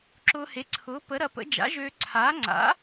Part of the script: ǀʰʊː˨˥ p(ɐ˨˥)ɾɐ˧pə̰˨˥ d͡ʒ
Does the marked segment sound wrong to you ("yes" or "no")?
yes